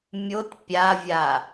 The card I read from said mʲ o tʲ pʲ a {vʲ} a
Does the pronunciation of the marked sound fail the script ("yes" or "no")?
no